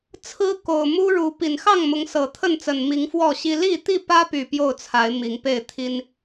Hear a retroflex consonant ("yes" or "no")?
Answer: yes